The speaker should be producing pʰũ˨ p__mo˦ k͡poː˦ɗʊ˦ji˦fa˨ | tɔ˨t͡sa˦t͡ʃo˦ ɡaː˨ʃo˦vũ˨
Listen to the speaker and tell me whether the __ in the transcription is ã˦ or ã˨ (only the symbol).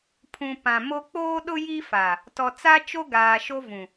ã˨